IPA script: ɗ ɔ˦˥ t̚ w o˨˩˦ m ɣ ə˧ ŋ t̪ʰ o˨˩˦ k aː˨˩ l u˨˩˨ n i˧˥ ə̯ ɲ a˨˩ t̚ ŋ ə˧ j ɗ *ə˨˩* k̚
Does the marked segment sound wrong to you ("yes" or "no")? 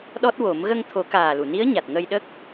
yes